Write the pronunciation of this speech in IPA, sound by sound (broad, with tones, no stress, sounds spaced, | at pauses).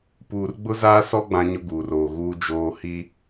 p uː˨ r ɡ͡b ʊ˦ z aː˦ s ɔ˦ ɡ͡b ã˦ ɲ ʊ˦ ɡ uː˨ r oː˨ ɣ uː˦ d͡ʒ oː˦ h i˦